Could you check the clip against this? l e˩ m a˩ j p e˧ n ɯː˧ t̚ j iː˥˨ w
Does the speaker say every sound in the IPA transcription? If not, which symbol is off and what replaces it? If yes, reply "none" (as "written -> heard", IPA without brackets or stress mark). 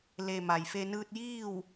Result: p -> f